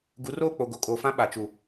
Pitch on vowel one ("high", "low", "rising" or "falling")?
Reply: rising